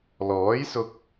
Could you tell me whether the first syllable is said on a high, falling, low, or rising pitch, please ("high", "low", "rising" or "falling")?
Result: rising